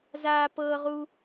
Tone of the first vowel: high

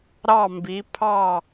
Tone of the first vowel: falling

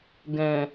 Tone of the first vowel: low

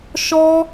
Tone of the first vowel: high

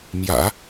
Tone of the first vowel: low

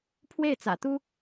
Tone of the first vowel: falling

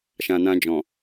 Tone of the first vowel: low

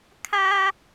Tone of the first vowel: high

